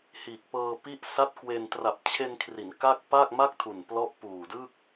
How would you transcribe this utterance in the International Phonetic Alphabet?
h iː˨˩ k̚ p ɤː˧ p i˦˥ ʔ s a˦˥ t̚ k w e˧ n t r a˨˩ p̚ t͡ɕʰ e˧ n kʰ r i˩˦ n k a˥˩ k̚ p a˥˩ k̚ m a˥˩ k̚ tʰ u˨˩ n p l ɔ˦˥ ʔ p uː˨˩ d ɯ˥˩ k̚

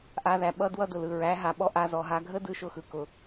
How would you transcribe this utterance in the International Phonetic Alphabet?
ʔ a˧ ð æ˨ ɓ ʌ˦ d w ʌ˦ d ʊ˨ l ɯ˨ ɹ æ˨˦ ɦ a˨ ɓ ɔ˦ ʔ a˧ z ɔ˨ ɦ a˧ ɡʱ ə˦ d ɯ˨˦ ʃ ʊ˧ x ɯ˨ k ʊ˨

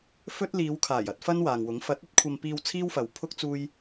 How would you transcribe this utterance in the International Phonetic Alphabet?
f ɵ˥ t̚ l iː˨˧ w kʰ aː˨˩ j ɐ˨˥ t̚ f ɐ˥ n w aː˨ ŋ w ʊ˨˥ ŋ f ɐ˨˥ t̚ ɵ˨˥ t̚ kʷʰ ɐ˧ m p iː˧ w t͡sʰ iː˥ w f ɐ˨ w pʰ ʊ˥ k̚ t͡s uː˥ j

